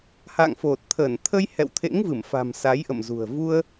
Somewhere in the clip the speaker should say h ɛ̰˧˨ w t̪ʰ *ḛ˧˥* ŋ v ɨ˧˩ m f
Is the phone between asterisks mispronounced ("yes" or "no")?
no